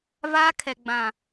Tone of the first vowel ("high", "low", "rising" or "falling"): high